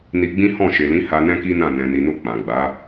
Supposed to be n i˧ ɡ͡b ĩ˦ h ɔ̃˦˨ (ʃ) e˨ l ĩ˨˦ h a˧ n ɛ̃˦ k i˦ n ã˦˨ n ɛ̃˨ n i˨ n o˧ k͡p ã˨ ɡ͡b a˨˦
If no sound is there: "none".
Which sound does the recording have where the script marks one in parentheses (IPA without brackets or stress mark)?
ʃ